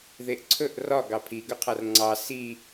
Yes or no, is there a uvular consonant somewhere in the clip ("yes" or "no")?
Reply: yes